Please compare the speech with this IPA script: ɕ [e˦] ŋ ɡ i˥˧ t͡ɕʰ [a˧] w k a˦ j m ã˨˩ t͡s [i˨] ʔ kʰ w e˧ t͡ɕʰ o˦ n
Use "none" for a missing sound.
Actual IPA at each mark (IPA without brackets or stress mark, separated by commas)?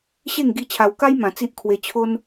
e˥˧, a˧, i˦